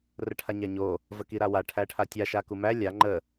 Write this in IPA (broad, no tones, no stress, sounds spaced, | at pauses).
r ə ʈʰ a ɲ æ ɲ o | v ə k i ɾ a w a ʈʰ æ ʈʰ a tʲ a ʃ a k u m æ lʲ a ŋ͡ǃ ə